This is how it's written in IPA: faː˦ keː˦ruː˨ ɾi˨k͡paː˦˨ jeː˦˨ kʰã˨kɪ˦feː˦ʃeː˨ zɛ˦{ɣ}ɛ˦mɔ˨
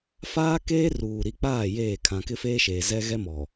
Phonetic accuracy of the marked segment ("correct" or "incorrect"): correct